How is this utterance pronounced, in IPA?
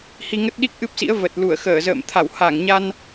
h i˧ ŋ ə˦˥ t̚ ɗ i˦˥ k̚ ʔ ɨ˦˥ p̚ s ḭ˧˥ ə̯ v ə˨˩ t̚ l u˧˩ ə̯ x əː˧˩ z ə̰ː˧˨ m t̪ʰ a˧˩ w h a˧˩ ŋ ɲ a˧ n

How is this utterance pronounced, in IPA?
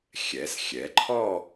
xʲ ɛ˩˧ s xʲ ɛ˩˧ ǃʰ ɔ˥˧

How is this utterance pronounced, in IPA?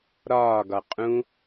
ɾ ɒː ɡ ɒ qʼ ũ

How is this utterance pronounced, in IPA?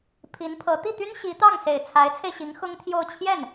pʰ i˧˥ n pʰ ɤ˧˥ t̪ i˥˩ t̪ y˥ n ɕ i˧˥ t̪ ɑ˥˩ ŋ s e˨˩ ɪ̯ t͡sʰ a˧˥ ɪ̯ t͡sʰ e˧ ɪ̯ ɕ i˧˥ ŋ x ʊ˥ ŋ t̪ʰ j o˥˧ ʊ̯ t͡ɕʰ j ɛ˥˩ n

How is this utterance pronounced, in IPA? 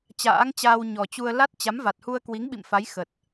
t͡ɕ a̰ː˧˥ ŋ t͡ɕ aː˧ w ɲ ɔ˨˩ t͡ɕ u˧ ə̯ l a˦˥ t̚ t͡ɕ a˨˦ m v a˨˩ t̚ h u˧ ə̯ k w i˨˦ ŋ ɓ ḭ˧˨ m f a˨˦ j x ə˨˩ t̚

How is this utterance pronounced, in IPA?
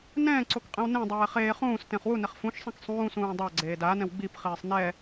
n ɛ̃ː ǀ o k qʼ ẽ w n ẽ dˤ ɛː χ eː χ ũː s t ẽ χ w u n e χ f ũ ʃ sˤ ĩ k sˤ ũː s ũː dˤ a ɡ͡ǀ eː d a n ɛ̃ w ɡ͡b i p χ iː sˤ n ɛ

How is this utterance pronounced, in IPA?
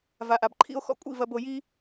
v a˨ ʔ a˨ b ǃʰ ḭ˧ o̯ x ɔ̰˧ kʷʼ ḭ˦˨ v ɐ˧ b o˧ j i˦

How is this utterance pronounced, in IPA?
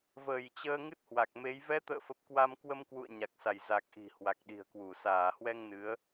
v əː˧˩ j t͡ɕ əː˧ ŋ ɨ˦˥ t̚ h w a˨˩ k̚ m e˨˦ j v ɛ˨˦ t̪ ə̰ː˧˨ f ə˨˩ p̚ k w a˧ m k w ə˧ m k w ṵ˧˨ ə̯ ɲ a˨˩ k̚ s a˧˩ j z a˨˩ k̚ ʔ i̤˨˩ h w a˨˩ k̚ ɗ i̤˨˩ ə̯ k w u˧˩ s aː˧˩ h w ɛ˧ ŋ n ɨ˨˦ ə̯

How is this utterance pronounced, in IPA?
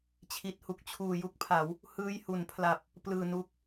t͡ɕʰ i˨˩ t̚ h u˨˩ k̚ t͡ɕʰ uː˨˩ j u˥˩ k̚ pʰ a˩˦ w | h ɯː˧ j h u˩˦ n pʰ l a˨˩ p̚ | p l ɯː˨˩ n u˦˥ k̚

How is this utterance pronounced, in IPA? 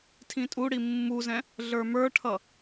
tʰ ĩ tʼ u ɽ i mː u z ɛ̃ | ɮ ə˞ m ə˞ ʈʰ ʌ

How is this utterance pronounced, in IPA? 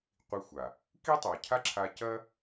qʷ i˧ xʷ a˨ | k i˦ tˤ a˨ cʰ a˦ ǁʰ a˧ c ɐ˦

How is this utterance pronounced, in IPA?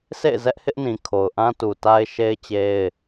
sʰ ḛ˦˨ ɪ̯ z ɛ˦ ʔ h ɪ˦ ʔ n ĩ˨ kʰ o˨ ʊ̯ ʔ ã˦ t u˨ t a˦ ɪ̯ ʃ e˦ ɪ̯ t͡ɕ e˦ ɪ̯

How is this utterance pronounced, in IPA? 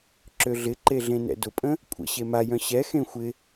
ǁ ø ɮ ɪ ǃ e ɮ ẽ n ɛ̰ d ʊ pʼ ə̃ | kʷʼ ə̰ ɕ e m a j œ̃ ɕ ɛ x ẽ xʷ ɪ

